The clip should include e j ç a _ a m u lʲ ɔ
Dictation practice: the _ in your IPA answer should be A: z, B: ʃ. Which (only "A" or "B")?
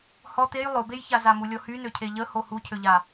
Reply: A